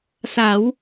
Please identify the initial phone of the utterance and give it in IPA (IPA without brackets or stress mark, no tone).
s